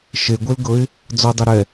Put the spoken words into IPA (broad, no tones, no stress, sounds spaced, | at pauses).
ʃ e ɡʷ e l ɡ ɤ ɪ̯ | d͡z ɔ dˤ a ɾ ɛ